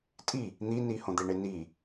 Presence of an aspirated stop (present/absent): absent